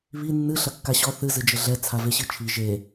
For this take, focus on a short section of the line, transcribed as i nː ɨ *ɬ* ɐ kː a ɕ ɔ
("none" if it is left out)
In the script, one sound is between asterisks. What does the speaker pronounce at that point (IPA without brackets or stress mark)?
ɬ